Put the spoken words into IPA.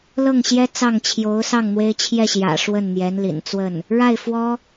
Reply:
l ɤ˥˩ ŋ ɕ j ɛ˥ t͡s ɑ˥˩ ŋ t͡ɕʰ j o˧˥ ʊ̯ s ɑ˥˩ ŋ n̪ w e˥ ɪ̯ t͡ɕʰ j ɛ˥˩ ɕ j ä̰˨˩ ʂ w ə˥˩ n n̪ j ɛ˧˥ n l ḭ˨˩ n t͡s w ə˥˩ n | ɻ a˥˩ ɪ̯ f w ɔ˥

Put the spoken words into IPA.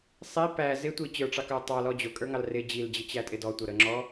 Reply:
sˤ i p æ z ɪ tʷ i t͡ɕ ə˞ ʈ͡ʂ ɑ k ə˞ tˤ ɑ l ɔ d͡ʑ ʊ kʼ ə˞ ŋ ɑ l r ɪ d͡ʑ i l d͡ʑ ɪ t͡ɕ æ tʼ ɪ d ɔ tʷ ʌ ɾ ə ŋ͡ǁ ɔ

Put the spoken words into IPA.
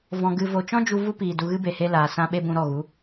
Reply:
v ɔ̃˨ ɡ ɨ˨ v o˨ t͡ʃ ɔ̃˦ d͡ʒ u˧ v u˦ p iː˨ d u˧ ɣ ɨ˦ b e˨ h e˦ l aː˨ s ã˧ ɓ e˦ b ũ˧ ɾ ɔ˦˨ ɣ u˨˦

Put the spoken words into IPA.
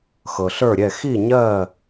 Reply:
x ɤ˩ ɬ ə˞˥˩ ɾʲ ɛ˥˩ x i˥˩ ɲ ɜ˥˩

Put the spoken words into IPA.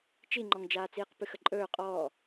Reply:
t͡ʃ i ŋ͡ǃ ɔ ŋ d͡ʒ aː t͡s iː q p ɨ x ə ǃʼ ɵː qʼ ɔː

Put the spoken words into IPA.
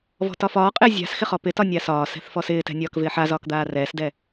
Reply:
v ɔ̤ t ɒ f ɒː qʼ ɪː zʲ a̤ s x ɪ χ ɔ p ɪ t ɒ nʲ a s ɒː s ɛ̤ θ f ɔ s ɪː t ɛ̤ nʲ ɒː k v ɪː ħ a z ɒː k d̪ aː r ɛː s d ɛ

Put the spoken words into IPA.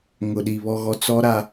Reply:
ŋ ʊ˨ ɗ i˨ β ɔ˨ ɣ ɔ˨ t͡s ɔ˦ ɾ a˦

